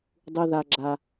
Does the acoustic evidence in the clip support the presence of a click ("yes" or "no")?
yes